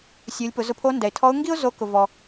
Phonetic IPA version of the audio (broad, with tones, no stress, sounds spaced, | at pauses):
sʲ u˩˧ lʲ p ʊ˩˧ z ʊ˧ pʰ o˧˥ n d ɛ˩ ɪ̯ tʰ ɔ˧˥ ʊ̯ ŋ ɡ i˥ ʊ̯ z o˧˥ k ʊ˩ v ɔ˩